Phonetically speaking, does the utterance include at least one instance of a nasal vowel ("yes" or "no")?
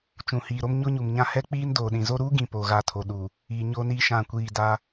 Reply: yes